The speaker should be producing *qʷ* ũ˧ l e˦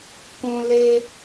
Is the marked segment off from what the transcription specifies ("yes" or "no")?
yes